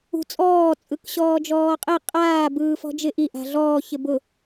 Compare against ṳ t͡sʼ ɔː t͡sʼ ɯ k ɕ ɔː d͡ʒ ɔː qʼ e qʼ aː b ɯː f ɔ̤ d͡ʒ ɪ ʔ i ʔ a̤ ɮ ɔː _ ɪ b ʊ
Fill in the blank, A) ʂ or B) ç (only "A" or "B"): B